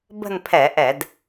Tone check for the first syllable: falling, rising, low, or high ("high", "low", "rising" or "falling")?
falling